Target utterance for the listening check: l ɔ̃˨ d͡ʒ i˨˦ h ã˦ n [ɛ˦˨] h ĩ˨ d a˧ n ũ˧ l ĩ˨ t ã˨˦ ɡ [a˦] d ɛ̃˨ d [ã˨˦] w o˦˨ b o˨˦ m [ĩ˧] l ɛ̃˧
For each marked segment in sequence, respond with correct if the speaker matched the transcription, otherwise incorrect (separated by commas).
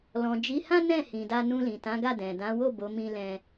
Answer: incorrect, incorrect, correct, correct